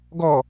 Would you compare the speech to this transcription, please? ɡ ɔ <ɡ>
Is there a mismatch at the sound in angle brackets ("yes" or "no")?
yes